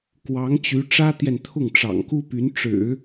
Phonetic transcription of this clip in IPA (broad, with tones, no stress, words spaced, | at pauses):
kwɑ˧˥ŋt͡ɕy˧˥ ʈ͡ʂä˥t̪jɛ˨nt̪ʰʊ˥˩ŋ ʈ͡ʂɑ̰˨˩ŋku˥py˧˥n ʈ͡ʂɻ̩˨˩˦